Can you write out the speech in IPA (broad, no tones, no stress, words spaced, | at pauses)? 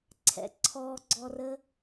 ǀʰɛ̰ǀʰɔɡ͡ǀɔrə